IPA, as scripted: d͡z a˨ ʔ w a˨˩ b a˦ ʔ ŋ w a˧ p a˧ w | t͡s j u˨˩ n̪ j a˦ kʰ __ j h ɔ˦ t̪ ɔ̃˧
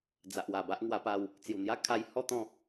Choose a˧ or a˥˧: a˧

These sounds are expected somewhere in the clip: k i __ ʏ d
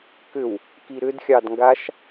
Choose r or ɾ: ɾ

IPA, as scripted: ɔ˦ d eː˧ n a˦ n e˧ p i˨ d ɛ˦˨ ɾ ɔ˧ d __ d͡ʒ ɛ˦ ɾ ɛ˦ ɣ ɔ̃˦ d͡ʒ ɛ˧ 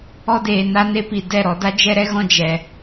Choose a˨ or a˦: a˦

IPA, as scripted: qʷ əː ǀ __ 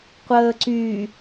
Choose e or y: y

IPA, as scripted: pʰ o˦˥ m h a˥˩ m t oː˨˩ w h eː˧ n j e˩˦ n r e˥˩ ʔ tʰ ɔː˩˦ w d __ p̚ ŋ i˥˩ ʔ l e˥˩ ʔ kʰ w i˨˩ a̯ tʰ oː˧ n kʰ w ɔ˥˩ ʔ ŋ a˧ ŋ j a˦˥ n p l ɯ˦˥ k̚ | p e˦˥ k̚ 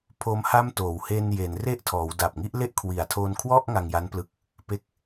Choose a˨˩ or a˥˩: a˨˩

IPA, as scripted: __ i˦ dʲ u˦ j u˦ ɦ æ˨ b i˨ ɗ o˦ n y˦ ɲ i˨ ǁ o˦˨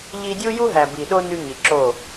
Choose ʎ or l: ʎ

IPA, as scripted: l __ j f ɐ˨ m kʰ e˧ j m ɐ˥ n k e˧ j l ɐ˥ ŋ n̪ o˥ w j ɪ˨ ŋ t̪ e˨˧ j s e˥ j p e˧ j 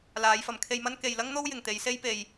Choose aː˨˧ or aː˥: aː˨˧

